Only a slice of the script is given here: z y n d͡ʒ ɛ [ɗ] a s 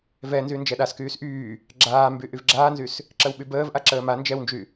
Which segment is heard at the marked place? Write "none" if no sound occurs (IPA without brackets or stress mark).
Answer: ɗ